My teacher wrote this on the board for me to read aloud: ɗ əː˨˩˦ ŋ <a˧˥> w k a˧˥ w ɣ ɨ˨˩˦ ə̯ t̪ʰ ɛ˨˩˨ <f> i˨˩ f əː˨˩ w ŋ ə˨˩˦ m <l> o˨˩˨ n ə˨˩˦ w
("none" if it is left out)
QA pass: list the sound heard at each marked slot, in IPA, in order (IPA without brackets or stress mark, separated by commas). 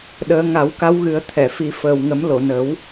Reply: a˨˩˦, f, l